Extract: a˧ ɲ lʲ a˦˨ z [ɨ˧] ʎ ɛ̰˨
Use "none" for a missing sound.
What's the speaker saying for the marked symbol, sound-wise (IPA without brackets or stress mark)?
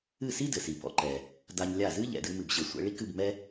ɨ˦